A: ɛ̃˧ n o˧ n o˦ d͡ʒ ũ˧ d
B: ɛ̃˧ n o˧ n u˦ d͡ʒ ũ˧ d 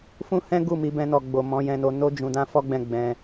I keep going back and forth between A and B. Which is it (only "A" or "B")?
A